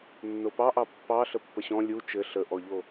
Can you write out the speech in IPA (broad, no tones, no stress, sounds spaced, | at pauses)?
nː o p ɑ ʔ ɑ pː ɑ ɬ ə pː ə ɕ ɔ̃ lʲ u t͡ʃ ɘ ɬ ə ʔ ɔ ʎ o